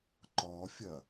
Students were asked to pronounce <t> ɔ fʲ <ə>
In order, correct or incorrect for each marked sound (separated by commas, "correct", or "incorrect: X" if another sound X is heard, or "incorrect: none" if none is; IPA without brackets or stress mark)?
incorrect: ǃ, incorrect: ɐ